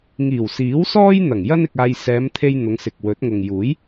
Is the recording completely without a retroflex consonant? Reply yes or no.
yes